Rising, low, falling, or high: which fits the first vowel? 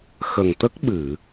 low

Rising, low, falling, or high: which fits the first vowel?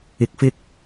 rising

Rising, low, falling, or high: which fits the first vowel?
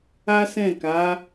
high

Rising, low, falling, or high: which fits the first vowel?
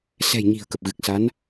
low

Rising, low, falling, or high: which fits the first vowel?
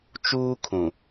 high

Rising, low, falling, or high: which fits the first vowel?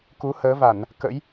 rising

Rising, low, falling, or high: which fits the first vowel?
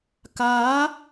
rising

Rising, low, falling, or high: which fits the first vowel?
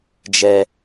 low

